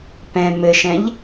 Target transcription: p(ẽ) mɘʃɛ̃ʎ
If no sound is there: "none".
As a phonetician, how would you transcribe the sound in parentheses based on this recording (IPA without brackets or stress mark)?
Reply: ɛ̃